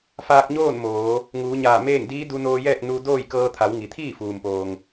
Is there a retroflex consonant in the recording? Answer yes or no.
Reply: no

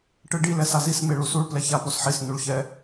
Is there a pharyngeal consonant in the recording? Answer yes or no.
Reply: yes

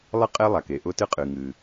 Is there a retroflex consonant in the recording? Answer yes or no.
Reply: no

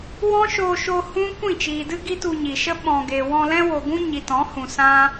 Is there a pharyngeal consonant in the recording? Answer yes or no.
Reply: no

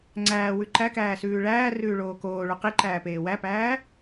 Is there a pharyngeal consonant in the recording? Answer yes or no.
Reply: no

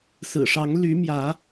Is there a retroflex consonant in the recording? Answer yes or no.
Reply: yes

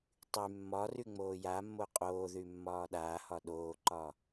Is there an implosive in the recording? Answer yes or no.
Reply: yes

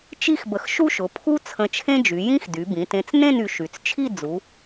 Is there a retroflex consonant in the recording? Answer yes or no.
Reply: no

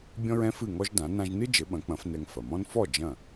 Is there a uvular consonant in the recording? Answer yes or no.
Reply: no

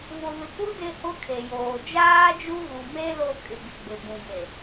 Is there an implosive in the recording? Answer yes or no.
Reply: no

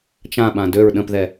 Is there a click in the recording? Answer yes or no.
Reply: no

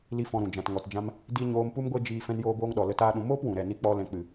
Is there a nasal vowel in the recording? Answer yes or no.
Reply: yes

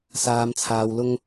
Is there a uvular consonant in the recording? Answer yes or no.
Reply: no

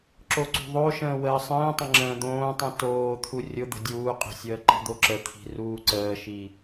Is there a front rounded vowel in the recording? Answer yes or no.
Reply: no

